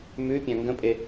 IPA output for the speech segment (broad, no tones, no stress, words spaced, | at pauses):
mʉpʲã ŋɡə̃pʼe